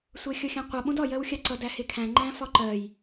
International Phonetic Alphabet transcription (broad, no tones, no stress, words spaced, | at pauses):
sʷɜxʲʌxʲãqʷʌ ɓõdɒ jɜwxʲaǀʌ dæhekʰæ̃ ŋ͡ǃæ̃fɒǃɜj